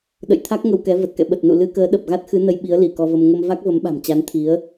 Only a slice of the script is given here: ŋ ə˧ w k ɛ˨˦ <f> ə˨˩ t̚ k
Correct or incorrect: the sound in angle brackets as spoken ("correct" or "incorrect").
incorrect